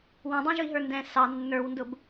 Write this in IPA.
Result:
wɑ̃dˤɑ̃ʒʊi̯ɦə˞ ndɛ̃ sɑ nːə˞wndʊb

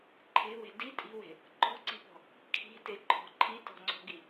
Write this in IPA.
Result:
ǃʰe̤we̤ di tʼi̤we̤ | ǃɔ̤ǀi̤pɔ̤ | kʰi̤teǃʰɔ̤ ǃʰitɔ̤ŋ͡ǀɔ̤ɡi

